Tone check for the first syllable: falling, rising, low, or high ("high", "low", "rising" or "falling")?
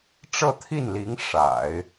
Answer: falling